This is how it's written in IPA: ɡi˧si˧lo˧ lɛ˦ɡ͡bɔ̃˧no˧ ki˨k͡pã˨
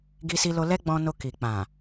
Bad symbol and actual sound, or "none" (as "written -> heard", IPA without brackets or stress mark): none